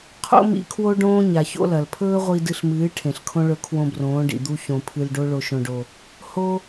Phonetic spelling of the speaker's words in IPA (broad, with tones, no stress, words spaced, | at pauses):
qʰo̰˦mḭ˧ kʰwo˦ɖõː˦ ɲa˨ço̰˦lɐ˨l pʰɵː˦ʁʷi˧dɨ˧ɬmɨː˨˦ ʈʰẽ˨ɬkʰõ˦ɭɵ˧ kʰwõ˧brõː˨˦ɖḭ˨ d̪u˦çõ˧ pʰɨ˧lɖo˦ ɭo˧ʃõ˧ɖo˧ | ho˦